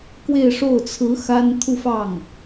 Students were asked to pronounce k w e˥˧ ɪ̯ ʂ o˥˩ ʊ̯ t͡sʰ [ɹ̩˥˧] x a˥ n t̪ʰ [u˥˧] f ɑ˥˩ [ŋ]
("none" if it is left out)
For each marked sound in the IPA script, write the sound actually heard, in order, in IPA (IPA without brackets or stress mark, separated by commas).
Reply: ɹ̩˧˥, u˥˧, ŋ